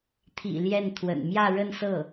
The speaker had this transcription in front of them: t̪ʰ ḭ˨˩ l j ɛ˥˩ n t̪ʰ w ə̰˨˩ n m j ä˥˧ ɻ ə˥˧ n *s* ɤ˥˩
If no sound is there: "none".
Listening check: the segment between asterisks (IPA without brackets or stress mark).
s